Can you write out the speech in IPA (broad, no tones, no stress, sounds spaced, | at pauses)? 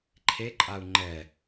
ǃʰ e ǃʼ a u̯ ŋ͡ǃ ɛ